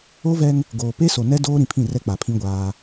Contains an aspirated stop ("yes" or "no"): yes